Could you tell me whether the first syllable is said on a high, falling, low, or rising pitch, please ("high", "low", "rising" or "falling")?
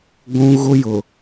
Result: high